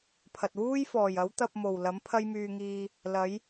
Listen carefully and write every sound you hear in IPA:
pʰ ɐ˨ t̚ w uː˥ j f ɔː˨˩ j ɐ˨˥ w t̪ ɐ˧ p̚ m o˨˩ w l ɐ˨˥ m pʰ ɐ˥ j m yː˧ ŋ iː˧ | l ɐ˨˥ j

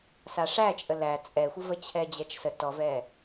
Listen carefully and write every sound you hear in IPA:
s a ʂ æ t͡ʃʼ ə l æ t͡sʼ ɛ xʷ ə v ə t͡ɕʰ ɛ d͡ʑ ɛ t͡ʃ s ə t ɔ v ɛ

